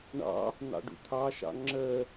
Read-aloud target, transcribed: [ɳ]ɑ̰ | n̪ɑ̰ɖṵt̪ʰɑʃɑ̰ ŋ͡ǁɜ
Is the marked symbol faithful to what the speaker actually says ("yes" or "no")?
yes